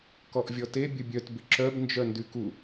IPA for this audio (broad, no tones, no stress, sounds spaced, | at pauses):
k ɔ ʔ vʲ ɔ t e bʲ ə bʲ œ t b ɪ ǁ œ b n d͡ʒ œ n d y k u